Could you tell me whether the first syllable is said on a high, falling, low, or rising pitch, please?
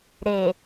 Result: low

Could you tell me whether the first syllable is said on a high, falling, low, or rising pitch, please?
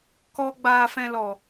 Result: high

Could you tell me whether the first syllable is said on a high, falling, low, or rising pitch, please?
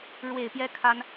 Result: low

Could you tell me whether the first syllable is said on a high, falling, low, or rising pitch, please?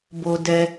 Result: low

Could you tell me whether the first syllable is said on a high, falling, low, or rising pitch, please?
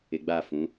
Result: low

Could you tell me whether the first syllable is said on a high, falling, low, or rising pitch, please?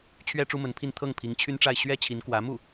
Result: high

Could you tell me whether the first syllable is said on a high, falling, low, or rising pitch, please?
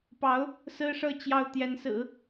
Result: rising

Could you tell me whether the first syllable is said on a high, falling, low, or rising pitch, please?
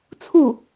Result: falling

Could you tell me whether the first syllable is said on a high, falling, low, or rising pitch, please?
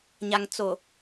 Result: low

